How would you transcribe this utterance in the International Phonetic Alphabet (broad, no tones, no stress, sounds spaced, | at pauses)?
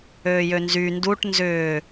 øː j ø n z y n d u ʈ n z ʏː